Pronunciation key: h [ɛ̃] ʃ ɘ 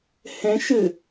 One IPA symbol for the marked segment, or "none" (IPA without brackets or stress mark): ɛ̃